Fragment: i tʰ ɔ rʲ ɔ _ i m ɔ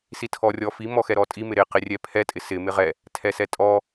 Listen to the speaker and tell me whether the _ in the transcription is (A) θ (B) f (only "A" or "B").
B